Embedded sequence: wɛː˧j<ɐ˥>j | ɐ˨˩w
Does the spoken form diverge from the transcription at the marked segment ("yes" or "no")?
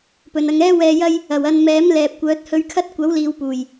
no